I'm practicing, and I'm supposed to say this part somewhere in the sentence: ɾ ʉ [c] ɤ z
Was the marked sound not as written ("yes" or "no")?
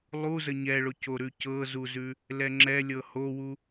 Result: no